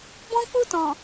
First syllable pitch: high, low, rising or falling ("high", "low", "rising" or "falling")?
high